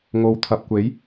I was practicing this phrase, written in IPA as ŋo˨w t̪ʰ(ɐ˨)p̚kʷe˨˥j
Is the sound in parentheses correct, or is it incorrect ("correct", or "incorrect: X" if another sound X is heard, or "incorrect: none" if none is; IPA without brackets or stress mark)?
correct